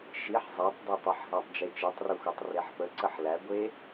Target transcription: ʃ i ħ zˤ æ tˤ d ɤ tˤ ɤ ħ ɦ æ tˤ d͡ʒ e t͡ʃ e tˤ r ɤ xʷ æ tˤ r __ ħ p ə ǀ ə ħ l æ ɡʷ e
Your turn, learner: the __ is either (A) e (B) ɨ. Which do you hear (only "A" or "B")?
A